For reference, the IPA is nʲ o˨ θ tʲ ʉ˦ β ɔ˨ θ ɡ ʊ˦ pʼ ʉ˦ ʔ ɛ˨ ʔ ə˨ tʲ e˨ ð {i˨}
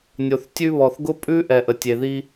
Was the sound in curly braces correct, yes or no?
no